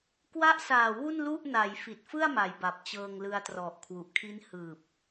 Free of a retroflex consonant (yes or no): yes